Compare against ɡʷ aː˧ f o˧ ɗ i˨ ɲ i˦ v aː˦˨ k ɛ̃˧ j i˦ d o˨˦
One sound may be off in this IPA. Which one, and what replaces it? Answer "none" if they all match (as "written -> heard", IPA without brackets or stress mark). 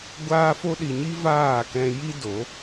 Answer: none